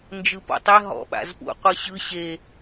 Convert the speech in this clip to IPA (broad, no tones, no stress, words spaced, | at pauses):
nd͡ʒɯpɔ̰tˤɛ ɦɔ̰ ɓa̰zpṵ qʷɯɕɯ ɕe